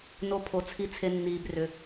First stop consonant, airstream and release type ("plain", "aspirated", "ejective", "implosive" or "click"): aspirated